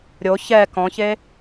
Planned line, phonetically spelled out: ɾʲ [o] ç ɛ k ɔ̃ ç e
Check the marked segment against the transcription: correct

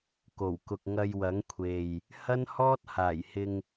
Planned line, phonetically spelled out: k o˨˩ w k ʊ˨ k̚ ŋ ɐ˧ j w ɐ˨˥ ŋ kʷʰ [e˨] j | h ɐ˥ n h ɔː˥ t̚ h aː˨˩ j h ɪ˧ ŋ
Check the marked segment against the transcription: correct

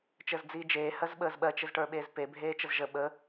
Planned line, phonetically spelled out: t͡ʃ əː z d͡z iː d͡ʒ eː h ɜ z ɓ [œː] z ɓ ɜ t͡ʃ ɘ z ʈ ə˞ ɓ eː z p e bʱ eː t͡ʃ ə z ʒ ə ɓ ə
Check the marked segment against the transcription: incorrect: əː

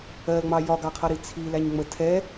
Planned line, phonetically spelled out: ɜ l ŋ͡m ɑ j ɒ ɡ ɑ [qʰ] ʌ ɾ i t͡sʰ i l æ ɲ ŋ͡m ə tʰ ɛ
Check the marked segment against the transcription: correct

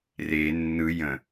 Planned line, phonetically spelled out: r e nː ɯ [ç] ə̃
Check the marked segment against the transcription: incorrect: j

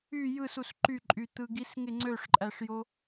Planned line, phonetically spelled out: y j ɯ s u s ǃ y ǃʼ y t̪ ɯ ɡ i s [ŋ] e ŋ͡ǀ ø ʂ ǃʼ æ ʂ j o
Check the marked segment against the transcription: correct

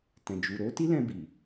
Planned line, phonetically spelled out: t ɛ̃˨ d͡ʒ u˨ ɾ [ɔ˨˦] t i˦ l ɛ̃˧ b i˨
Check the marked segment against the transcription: incorrect: o˨˦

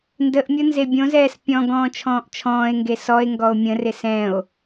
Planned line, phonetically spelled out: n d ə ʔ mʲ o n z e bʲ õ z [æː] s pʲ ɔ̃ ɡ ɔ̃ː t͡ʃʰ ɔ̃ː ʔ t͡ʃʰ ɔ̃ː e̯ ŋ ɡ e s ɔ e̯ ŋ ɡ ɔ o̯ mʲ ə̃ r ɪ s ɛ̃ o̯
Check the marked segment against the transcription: incorrect: ɛː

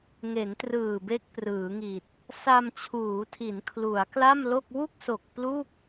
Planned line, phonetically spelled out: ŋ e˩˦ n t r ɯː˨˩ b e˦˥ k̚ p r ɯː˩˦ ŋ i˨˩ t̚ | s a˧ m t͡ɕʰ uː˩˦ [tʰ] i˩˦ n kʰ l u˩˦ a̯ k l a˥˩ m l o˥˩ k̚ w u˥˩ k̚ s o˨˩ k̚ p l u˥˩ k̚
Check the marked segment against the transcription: correct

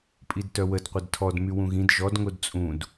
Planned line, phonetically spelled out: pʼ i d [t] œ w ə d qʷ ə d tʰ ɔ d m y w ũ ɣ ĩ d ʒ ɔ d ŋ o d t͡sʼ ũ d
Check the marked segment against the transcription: correct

